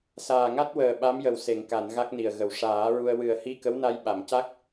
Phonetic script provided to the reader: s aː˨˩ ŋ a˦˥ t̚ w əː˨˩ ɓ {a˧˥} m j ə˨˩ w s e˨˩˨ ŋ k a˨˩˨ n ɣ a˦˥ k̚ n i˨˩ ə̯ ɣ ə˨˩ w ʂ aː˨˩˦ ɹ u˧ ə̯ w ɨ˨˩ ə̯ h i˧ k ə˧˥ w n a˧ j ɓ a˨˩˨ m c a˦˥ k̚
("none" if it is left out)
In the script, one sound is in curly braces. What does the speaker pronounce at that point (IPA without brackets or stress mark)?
a˧˥